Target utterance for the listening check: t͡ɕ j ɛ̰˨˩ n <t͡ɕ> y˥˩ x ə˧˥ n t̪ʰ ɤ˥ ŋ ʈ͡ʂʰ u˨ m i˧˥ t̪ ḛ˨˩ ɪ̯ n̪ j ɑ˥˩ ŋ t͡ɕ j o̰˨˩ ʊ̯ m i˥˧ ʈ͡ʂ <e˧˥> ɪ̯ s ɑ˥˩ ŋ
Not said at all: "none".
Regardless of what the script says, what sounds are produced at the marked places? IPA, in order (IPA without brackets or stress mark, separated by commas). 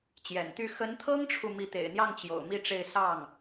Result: t̪, e˥˧